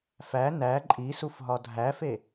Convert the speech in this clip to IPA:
f æ n æ ǃʼ i s u f ɦ ɒ dʱ æ f e

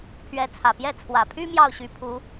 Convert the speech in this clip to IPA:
pʰ ɥ ɛ˧˥ t͡sʰ ä˨˩ p j ɛ˥˩ t͡sʰ w ä˨˩ pʰ y˥ m j ɑ˥˩ ʊ̯ ɕ y˧˥ pʰ u˧˥

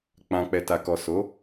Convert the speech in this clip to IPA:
k͡p ã˨ k͡p ɛ˨ t a˨ k ɔ˨ s o˨˦

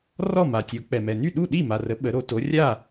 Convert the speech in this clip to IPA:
r ɔ˥˩ m a˩ tʲ o˩˧ k͡p ɛ˩ m ɛ˩ n y˥˩ ɗ u˥˩ ɗ i˥˩ m a˩ r ə˩˧ ɓ ə˩˧ ɾ o˩˧ t o˩˧ rʲ a˥˩

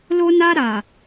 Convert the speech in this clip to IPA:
l o˧ n a˧ ɾ a˨

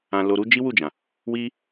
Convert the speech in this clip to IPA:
ã˨ l o˨ ɾ u˧ d͡ʒ i˦ w u˦˨ d͡ʒ ã˨ | w i˦

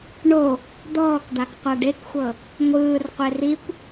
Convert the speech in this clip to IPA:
ɳ o | d̪ ɔː k d̪ a k qʷ a ɖ e k xʷ ɤ | ŋʷ ɯː r qʷ e r i kʷ

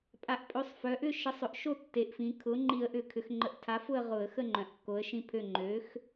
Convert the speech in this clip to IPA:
pʼ a˩˧ ʔ pʼ ø˩˥ sˤ f œ˩˧ ʔ ʏ˥˨ ʃ ə˩˥ sˤ ʏ˩ ʔ ʃ o˥˨ tː e˩˧ ʔ f ĩ˩˧ kʰ ʊ˩˥ ŋ͡ǃ i˧˩˧ ə̯ ʔ ʏ˧˩˧ kʰ ʏ˩˧ x ŋ͡ǃ ə˩˥ ʔ tʰ a˩˥ f ʊ˥˨ ə̯ ʁ ʊ˧˩˧ ə̯ x ə˥˨ ŋ͡ǃ œ̃˩ ʔ kː o˩˥ ə̯ ʃ ĩ˥˨ pʰ ø˥˨ ŋ͡ǃ ø˩˥ x

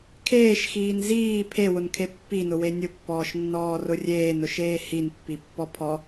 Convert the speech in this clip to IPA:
kʰ eː ʃ x iː n z iː pʰ e w ʊ n kʰ e pː i n ʊ w e nʲ ʊ pː ɔː ʃ nː ɔː r ʊ rʲ eː n ʊ ʃ eː h i n pː i pː ɔ pʰ ɔ

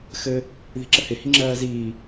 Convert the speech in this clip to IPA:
x ɘ | ð i̤ ǁ ə h ɪ h i ŋ͡ǁ ɜː z iː

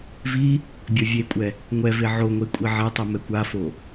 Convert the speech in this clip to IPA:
v i | bʲ ɔ vʲ e kʷʼ ɛ | ŋʷ ɛ v e ʕ o ŋʷ e kʷʼ i ʕ e tˤ i m ɛ kʷ a f o

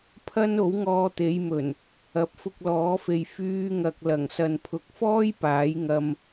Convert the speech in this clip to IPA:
pʰ ɐ˥ n o˨˥ w ŋ ɔː˧ t̪ e˨˧ j m ɵ˨˩ n | ɐ˨˥ p̚ f ʊ˧ k̚ l ɔː˨˥ f e˨ j f yː˥ ŋ ɐ˧ k̚ l ɐ˨˩ ŋ s ɐ˨ n pʰ ʊ˨˥ k̚ f ɔː˥ j p aː˨˥ j ŋ ɐ˧ m

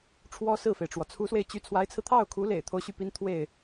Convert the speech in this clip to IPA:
ʈ͡ʂʰ w ɔ˥ s ɹ̩˥˩ f e˩ ɪ̯ ʈ͡ʂ w ɔ˩ t͡sʰ u˧˥ s w e˧ ɪ̯ t͡ɕ y˧˥ t͡sʰ w a˧˥ ɪ̯ t͡sʰ ɹ̩˧ t̪ʰ ɑ˥˩ ʊ̯ kʰ u˧˥ l ḛ˨˩ ɪ̯ t̪ʰ o˦ ʊ̯ ɕ y˥˩ p i˥ n t̪ʰ w e˥˩ ɪ̯

